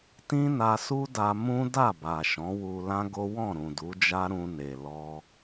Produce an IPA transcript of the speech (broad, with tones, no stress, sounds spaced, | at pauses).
t ĩ˦ n a˧ s u˦ d a˧ m ũ˦ d a˦˨ b a˨ ʃ ɔ̃˨˦ w u˧ l ã˦ ɡ o˦ w ɔ̃˦˨ ɾ ũ˨ d u˨˦ d͡ʒ a˦ ɾ ũ˧ n e˨ l ɔ˧